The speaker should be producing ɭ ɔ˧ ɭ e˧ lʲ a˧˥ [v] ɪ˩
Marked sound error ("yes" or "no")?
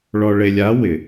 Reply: yes